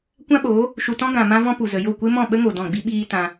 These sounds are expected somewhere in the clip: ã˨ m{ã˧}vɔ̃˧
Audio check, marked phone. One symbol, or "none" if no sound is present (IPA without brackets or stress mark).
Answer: ã˧